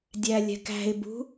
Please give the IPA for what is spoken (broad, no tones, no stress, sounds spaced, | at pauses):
dʲ æ lʲ ɛ̤ k æ̤ ɪ̯ b ṳ